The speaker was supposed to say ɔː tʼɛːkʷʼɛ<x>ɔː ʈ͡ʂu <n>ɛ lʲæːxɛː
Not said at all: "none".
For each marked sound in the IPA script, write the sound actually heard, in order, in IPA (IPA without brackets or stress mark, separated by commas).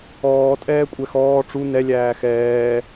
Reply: x, n